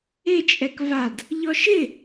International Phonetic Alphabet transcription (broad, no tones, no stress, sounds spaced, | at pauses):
ɪ t͡ʃʼ ɛ k v a d | ʎ ɔ ʃ ɪ